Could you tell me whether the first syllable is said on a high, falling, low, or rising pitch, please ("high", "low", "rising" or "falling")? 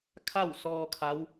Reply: falling